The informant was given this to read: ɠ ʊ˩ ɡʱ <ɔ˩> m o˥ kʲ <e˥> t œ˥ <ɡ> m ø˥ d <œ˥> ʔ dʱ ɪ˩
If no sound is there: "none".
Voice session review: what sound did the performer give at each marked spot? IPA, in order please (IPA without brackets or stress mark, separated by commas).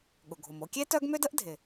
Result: o˩, e˥, ɡ, ə˥